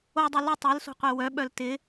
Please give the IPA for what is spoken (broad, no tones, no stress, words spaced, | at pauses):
odˤœ lʏ tˤœlso̤qʷe wœɓœl tɪ